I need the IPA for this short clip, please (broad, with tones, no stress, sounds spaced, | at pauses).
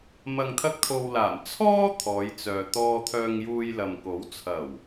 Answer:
m ɐ˨ ŋ t̪ʰ ɐ˧ k̚ t̪ʰ o˨ w l aː˨˩ m t͡sʰ ɔː˥ t̪ʰ ɔː˨˧ j t͡s œː˨ t̪ ɔː˧ t̪ʰ œː˧ ŋ j uː˧ j l ɐ˨ m k o˨˥ w t͡sʰ ɐ˨˩ w